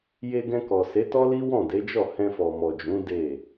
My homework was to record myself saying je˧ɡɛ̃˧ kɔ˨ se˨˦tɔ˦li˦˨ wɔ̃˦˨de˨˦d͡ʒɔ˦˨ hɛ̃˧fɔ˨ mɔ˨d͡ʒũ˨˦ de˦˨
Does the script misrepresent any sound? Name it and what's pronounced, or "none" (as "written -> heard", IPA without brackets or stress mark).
i˦˨ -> i˦